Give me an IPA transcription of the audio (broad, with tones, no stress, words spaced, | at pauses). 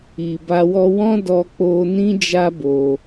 i˨ba˧ wɔ˧wɔ̃˦ dɔ˧k͡po˧ nĩ˦d͡ʒa˦bo˧